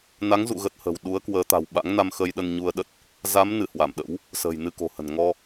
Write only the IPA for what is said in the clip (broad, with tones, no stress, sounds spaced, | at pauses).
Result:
n a˨˦ ŋ z ṵ˧˨ ɣ ə˦˥ t̚ h ə̤˨˩ w ɗ u˨˦ ə̯ k w əː˨˦ t̪ a̤˨˩ w ɓ a̰˧˥ ŋ n a˧ m x ə˧ j ɗ ə˧ n ɲ u˧ ə̯ ɗ ə˦˥ t̚ | z a˨˦ m n ɨ˧˩ h w a˧˩ m ɗ ə̰˧˥ w | s ə̤ː˨˩ j n ɨ˧ k o̤˨˩ h ə̤˨˩ n ŋ ɔ˧